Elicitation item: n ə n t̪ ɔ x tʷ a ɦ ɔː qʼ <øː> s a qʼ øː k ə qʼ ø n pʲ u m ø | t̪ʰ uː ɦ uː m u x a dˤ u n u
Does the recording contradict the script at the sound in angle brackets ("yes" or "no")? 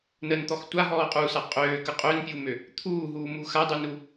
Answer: yes